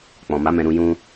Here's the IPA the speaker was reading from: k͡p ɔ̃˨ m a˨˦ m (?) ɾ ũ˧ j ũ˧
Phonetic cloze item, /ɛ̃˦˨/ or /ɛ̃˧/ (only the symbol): ɛ̃˧